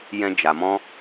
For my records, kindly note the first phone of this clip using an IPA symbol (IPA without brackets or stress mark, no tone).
j